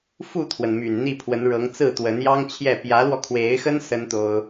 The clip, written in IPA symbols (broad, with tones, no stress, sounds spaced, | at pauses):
f u˥˩ t̪ʰ w ə˩ n m y˨˩ n n̪ i˥˩ pʰ w ə˧˥ n ɻ ɤ˧˥ ŋ t͡s ɹ̩˥˩ t̪ w ə˧˥ n j ɑ˥ ŋ t͡ɕʰ j ɛ˥˩ p j ä˧˥ l w ɔ˧ kʰ w e˧˥ ɪ̯ x ə˥ n s ə˥ n t̪ o˥ ʊ̯